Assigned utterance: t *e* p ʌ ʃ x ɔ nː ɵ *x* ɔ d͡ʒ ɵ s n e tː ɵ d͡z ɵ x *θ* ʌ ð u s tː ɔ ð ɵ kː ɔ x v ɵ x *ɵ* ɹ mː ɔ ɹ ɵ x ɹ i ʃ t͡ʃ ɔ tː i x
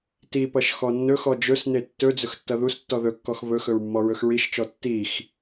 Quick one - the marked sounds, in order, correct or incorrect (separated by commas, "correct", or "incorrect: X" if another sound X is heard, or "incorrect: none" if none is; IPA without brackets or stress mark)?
incorrect: i, correct, incorrect: tː, correct